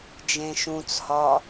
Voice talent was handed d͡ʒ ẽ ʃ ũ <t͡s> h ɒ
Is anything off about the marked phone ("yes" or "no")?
no